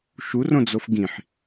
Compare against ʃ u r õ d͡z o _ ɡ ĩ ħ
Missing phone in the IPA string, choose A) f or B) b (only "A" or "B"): A